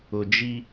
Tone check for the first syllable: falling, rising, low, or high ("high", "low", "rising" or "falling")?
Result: low